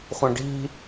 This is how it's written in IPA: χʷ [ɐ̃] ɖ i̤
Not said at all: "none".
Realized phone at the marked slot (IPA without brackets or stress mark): ɐ̃